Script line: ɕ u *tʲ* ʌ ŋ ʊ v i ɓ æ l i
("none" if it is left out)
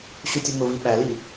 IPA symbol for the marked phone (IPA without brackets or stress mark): tʲ